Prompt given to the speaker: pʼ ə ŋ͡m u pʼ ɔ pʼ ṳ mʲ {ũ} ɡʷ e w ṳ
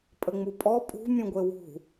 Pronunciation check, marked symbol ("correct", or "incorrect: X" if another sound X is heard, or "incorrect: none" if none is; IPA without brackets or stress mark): correct